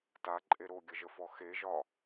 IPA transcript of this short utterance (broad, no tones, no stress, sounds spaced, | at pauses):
t a ǃʼ e ɾ o ɡʲ ə ʒ ə f ɔ x e ʒ ɒ